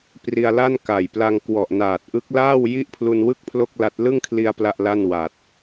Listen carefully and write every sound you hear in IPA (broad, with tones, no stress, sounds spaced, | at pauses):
p r i˧ a̯ l a˥˩ n k a˨˩ j p l a˧ ŋ k w ɔ˨˩ ʔ n aː˨˩ t̚ ʔ ɯ˦˥ k̚ l aː˥˩ w j i˥˩ ʔ pʰ l u˧ n w ɯ˥˩ k̚ pʰ l o˥˩ k̚ l a˦˥ t̚ l ɯ˥˩ ŋ kʰ l i˧ a̯ p l a˥˩ ʔ l a˥˩ n w a˨˩ t̚